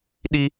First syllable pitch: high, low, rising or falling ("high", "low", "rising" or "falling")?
high